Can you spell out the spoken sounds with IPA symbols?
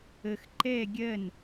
ə x ǃ ɛ ɡʲ ɜ n

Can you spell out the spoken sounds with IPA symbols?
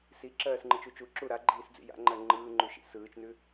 s i ǁ ɜː s ŋ͡ǃ ɯ t͡ʃ u t͡ʃ u ǁ u ɾ a ɡ͡ǃ iː s d͡z ḭ j a̰ ŋ͡ǃ ɜ ŋ͡ǃ ɯː ŋ͡ǃ ʉ ʃ ḭ s ɯː t͡ʃ n ʉ

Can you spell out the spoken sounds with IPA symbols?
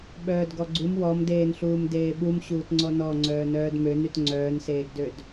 ɓ œː d ɡ ɔ ɡ͡ǀ u m w ɔ m d eː n ɬ uː m d eː ɓ u m ɕ uː t ŋ͡ǀ ɔ n ɔ ŋ͡ǀ œː n œː d m ø n y t ŋ͡ǀ œː n s eː ɡ d ø d

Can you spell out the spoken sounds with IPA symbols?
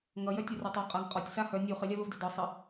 ŋ ʌ j œ tʲ u r o tˤ o qʼ a ŋ qʼ ɒ tʲ s a h œ nʲ u χ ɘ lʲ a v ə v d œ d ɒ sˤ ɘ

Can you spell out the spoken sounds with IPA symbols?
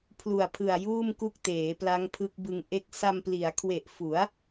pʰ l u˨˩ a̯ pʰ ɯ˨˩ a̯ j uː˥˩ m k u˦˥ k̚ t eː˩˦ p l a˦˥ ŋ pʰ ɯ˦˥ k̚ b ɯ˧ ŋ ʔ e˦˥ k̚ s a˧ m p l i˩˦ a̯ kʰ w e˨˩ ʔ f u˩˦ a̯

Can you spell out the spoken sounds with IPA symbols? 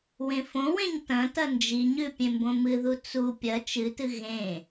w ẽ f õ w ẽ ɲ t ɐ̃ t ɐ n d͡ʒ i ɲ ʉ pʲ ẽ m b õ m ɨ ð u t͡s u pʲ ɐ t͡ʃ ɨ t ɨ ɣ ẽ

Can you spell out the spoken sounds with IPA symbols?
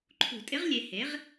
ǃʰ ṳ˨˩˦ tʼ ɪ˧˥ ʁ lʲ e˨ h e˩˥ ʁ

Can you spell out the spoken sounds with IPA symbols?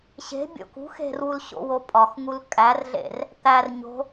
ɕ e̤ bʲ o̰ k ṳ x e̤ r w u l ɕ o̰ w o pʼ ɒ x ŋ u l kʼ æ r ɮ ḛ r | t̪ æ r ɲ o̤

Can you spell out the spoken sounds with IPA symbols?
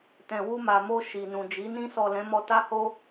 t ɛ̃˨ w u˧ m a˨ m o˧ ʃ i˨ n ũ˨ d͡ʒ i˨˦ n ĩ˧ s ɔ˨ l ɛ̃˨˦ m ɔ˧ t a˦ h o˦

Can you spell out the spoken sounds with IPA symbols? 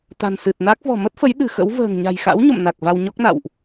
t̪ a̤˨˩ n s ɨ˨˩ t̚ n a˦˥ k̚ v ɔ̤˨˩ m ə˦˥ t̚ f ə˨˦ j ɗ ɨ̤˨˩ x ə̰˧˥ w v ə̤ː˨˩ ŋ ɲ a̤˨˩ j x a̰˧˥ w ɲ o̰˧˨ m n a˨˩ k̚ v a˧ w ɲ ɔ˦˥ k̚ n a̰˧˨ w ʔ

